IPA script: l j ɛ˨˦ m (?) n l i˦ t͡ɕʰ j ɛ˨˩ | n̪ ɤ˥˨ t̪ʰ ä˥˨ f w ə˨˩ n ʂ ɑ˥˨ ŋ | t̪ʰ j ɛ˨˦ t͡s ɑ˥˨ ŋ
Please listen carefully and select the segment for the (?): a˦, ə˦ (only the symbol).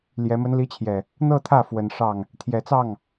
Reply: ə˦